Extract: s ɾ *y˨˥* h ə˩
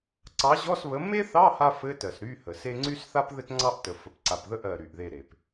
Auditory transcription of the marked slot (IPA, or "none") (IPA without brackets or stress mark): y˧˥˧